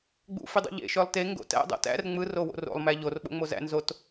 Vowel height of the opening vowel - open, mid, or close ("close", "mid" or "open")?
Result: close